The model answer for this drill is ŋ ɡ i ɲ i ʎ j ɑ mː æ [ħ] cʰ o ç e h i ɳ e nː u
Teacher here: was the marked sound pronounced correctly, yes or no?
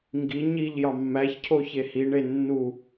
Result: no